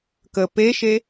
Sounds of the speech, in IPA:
k ə p e ʃ e

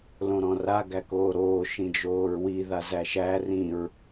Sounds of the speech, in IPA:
l õ ɾ ɔ̃ r a ɡ æ k oː ɾ oː ʃ ĩ d͡ʒ oː ɹ w i ð a z æ ʃ æ r ĩ ɹ

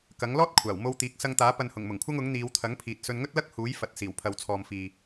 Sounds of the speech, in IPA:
k ɐ˨˥ ŋ l ɔː˥ t̚ kʷʰ aː˨˩ w m o˧ w t̪ iː˨˥ k̚ s ɐ˧ ŋ t̪ aː˨˥ p ɐ˨ n h ʊ˨˩ ŋ m ʊ˨˩ ŋ kʷʰ ɐ˧ ŋ ʊ˨˥ ŋ n̪ iː˨˧ w t̪ʰ ɐ˨˥ ŋ pʰ iː˨ t̚ s ɵ˧ n ŋ ɵ˥ t̚ l ɐ˥ k̚ h uː˨˥ j f ɐ˨ t̚ s iː˨˩ w pʰ ɐ˨ w t͡sʰ ɔː˨ m f iː˨

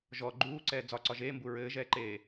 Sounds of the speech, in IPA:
ʒ ɔ ɡ͡ǃ uː ǀ ɛː d͡z ɒ ǀ ɒ ʒ eː m b u ɹ ɘː ʒ ɛː ǃ eː

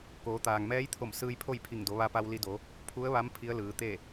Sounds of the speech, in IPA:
k oː˩˧ t̪ aː˩ ŋ m ɛː˧˥ j t̪ʰ o˧˩ m s ɯː˧ j pʰ o˥˨ j pʰ i˧˩ ŋ d o˩˧ ʋ a˧ p a˧ w l i˧ d o˩˧ | pʰ u˧˥ ə̯ ʋ a˧˥ m pʰ i˧˥ ə̯ l ɯː˩˧ t̪ e˥˨

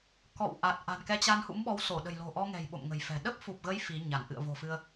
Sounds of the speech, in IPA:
k ɔ̰˧˨ w ʔ a˨˩ t̚ ʔ a̤˨˩ n k ɛ˧ t͡ɕ a˧ n h ṵ˧˥ m ɓ ɔ˨˦ w s o˧˩ ɗ ə̤˨˩ j l o̤˨˩ ʔ ɔ˧ ŋ ɛ̤˨˩ j ɓ o̰˧˨ m ŋ ə̤˨˩ j f ɛ̤˨˩ ɗ ə˦˥ p̚ f u˨˩ p̚ ɣ ə˨˦ j f i˨˦ ɲ a˧˩ n ʔ ɨ̰˧˨ ə̯ v o̤˨˩ f ɨ˧ ə̯

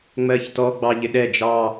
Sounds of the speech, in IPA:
ŋ͡m ɜ ç t ɔ ɡ͡b ɑ ʎ ɪ ɗ ɛ d͡ʒ ɑ

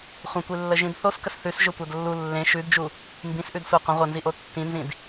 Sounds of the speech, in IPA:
χʷ ə̃ tʷ i lː ə ʒ ĩ d θ o s k ə s θ ʉ s ʒ ɵ tʷ ɐ d lː u lː ẽ ʃ ʉ d d͡ʒ u | m b ĩ s ʔ ʉ d sʷ ɐ qʷ ə̃ ʁʷ ɐ n z i ʔ o tː ĩ n z ĩ d

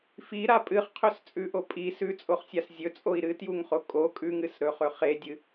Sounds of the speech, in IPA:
f i ɾ a pʼ ɨ χ qʰ ɵ s t͡sʼ ʉ ʔ o pʼ i s ʉ t͡sʼ o χ sʲ a s zʲ ɵ t͡sʼ o i̯ ɾ ɨ t j u ŋ χ o kʼ o kʼ ʉ ŋ ɨ s ɾ ɵ χ ɵ χ e dʲ ɨ

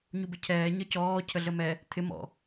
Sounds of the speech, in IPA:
ɲ u b ɪ cʰ ɛː ɲ ʌ c ɔː cʰ ə ɮ ə m ɛ | t̪ʰ ɪ m ɔ̰

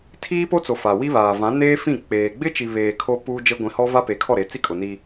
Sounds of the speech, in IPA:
tʰ iː˦ p o˦ t͡s o˨ f a˨ w i˦ β aː˨ v ã˨˦ n eː˦ f ĩ˦˨ k͡p eː˨ ɡ͡b ɪ˦ t͡ʃ i˨ β eː˨ kʰ o˦ p uː˦ d͡ʒ e˦ ɡʷ ĩ˨ h ɔ˦ v a˦ p e˨ kʰ ɔ˦˨ ɾ e˨ t͡s i˦ kʼ ʊ˨ n iː˦

